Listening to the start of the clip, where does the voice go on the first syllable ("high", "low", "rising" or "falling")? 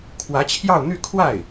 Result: rising